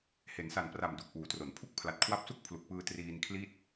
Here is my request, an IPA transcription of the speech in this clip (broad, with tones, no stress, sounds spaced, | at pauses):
h e˩˦ n s a˨˩ n p r a˨˩ m d u˨˩ k̚ ʔ uː˩˦ t r o˩˦ n pʰ u˥˩ k̚ pʰ l a˨˩ t̚ kʰ w a˦˥ p̚ s u˥˩ k̚ pʰ l u˨˩ k̚ p ɯː˧ t r iː˧ n kʰ l i˥˩ t̚